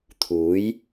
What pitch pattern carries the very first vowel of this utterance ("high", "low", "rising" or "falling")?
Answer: rising